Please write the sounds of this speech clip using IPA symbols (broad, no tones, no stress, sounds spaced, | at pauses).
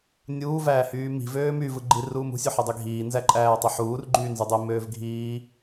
nʲ uː v æː h yː m i̤ v øː m y v ɯ ɡ͡ǃ i r uː m ṳ sʲ ø ħ i dˤ i ɡʱ iː n z æ ǃʼ æː tˤ y ħ uː r ɡ͡ǃ yː n z y dˤ i m øː v ɡʱ iː